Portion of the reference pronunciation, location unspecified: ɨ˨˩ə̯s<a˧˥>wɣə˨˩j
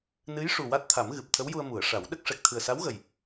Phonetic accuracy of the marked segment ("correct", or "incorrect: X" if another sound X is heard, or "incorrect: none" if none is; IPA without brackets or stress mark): correct